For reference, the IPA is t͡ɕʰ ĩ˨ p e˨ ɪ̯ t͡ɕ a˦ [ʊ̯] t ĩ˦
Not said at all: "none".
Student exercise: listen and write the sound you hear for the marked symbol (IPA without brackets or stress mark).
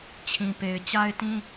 ɪ̯